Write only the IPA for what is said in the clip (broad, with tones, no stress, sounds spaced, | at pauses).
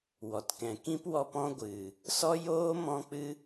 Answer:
w ɔ˨ t k ɛ̃˨ k ĩ˦ p w ɔ˧ p ɔ̃˦ ɡʷ ɨ˨ | s ɔ˦ j oː˦ m ɔ̃˦ k͡p ɨ˦